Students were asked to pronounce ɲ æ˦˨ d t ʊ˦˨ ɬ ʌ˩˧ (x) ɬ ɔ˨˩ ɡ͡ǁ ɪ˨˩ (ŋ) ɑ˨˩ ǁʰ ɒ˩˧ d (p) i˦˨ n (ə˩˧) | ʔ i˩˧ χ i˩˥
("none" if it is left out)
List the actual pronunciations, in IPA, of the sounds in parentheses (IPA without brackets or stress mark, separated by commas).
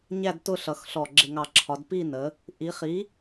x, ŋ, p, ə˩˧